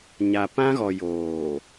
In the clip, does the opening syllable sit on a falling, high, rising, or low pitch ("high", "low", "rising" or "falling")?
low